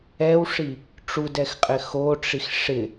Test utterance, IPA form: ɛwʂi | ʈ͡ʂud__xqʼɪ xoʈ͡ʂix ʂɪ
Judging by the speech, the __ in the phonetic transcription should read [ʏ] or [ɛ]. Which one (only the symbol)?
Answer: ɛ